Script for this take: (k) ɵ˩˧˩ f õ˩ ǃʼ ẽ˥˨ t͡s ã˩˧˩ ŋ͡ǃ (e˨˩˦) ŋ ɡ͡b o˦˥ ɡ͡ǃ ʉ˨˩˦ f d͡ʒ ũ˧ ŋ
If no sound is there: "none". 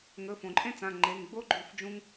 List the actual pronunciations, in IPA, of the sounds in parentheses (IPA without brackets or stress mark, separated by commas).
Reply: ŋ, e˩˧˩